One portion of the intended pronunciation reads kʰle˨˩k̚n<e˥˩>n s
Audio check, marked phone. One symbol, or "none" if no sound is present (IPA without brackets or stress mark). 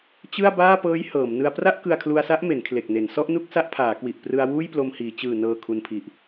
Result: e˩˦